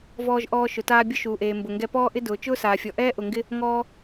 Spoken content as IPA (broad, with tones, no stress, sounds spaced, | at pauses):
v ɔː˧ ʒ ʔ ɔː˧ ʃ ʊ˩ t aː˧ bʲ ʊ˧ ʃ uː˩ ʔ eː˩ m b ʊ˩ ŋ ɡ ɛ˧ p ɔː˧ ʔ ɪ˧ d ʊː˩ t͡ʃ ʊː˥ s aː˩ fʲ ɔ˩ ʔ ɛː˥ ʔ ʊ˩ ŋ ɡ ɪ˧ | ŋ ɔː˧